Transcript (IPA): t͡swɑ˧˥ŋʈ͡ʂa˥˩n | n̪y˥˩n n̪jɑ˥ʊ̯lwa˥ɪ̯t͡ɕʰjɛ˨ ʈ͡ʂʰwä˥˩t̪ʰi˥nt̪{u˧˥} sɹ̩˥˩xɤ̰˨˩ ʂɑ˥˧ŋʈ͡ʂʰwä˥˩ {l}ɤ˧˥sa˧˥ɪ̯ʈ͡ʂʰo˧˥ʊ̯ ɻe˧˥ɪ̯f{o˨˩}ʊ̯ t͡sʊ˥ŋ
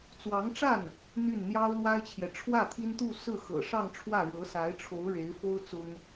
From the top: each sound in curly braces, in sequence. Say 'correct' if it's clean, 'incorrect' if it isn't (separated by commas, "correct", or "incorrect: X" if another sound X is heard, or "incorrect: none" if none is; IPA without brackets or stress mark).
incorrect: u˥˧, incorrect: ɻ, incorrect: o˥